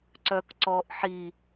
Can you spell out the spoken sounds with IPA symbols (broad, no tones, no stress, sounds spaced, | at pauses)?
ǀ œ k ǀ ɔ ʔ ħ i